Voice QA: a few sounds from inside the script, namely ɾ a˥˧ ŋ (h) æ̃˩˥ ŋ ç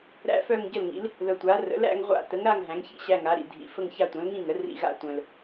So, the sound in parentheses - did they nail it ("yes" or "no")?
no